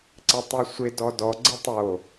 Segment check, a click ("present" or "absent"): present